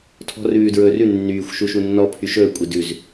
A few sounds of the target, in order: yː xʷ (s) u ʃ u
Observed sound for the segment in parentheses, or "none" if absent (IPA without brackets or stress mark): ʃ